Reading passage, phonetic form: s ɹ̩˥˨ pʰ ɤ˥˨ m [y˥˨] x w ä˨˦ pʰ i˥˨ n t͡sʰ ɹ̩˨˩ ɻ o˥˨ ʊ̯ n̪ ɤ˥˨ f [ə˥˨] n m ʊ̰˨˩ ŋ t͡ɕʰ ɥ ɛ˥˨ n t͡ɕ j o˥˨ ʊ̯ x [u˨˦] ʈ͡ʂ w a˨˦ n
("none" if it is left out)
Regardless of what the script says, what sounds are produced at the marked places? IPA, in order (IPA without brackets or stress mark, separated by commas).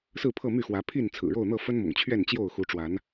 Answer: y˥˨, ə˦, u˨˦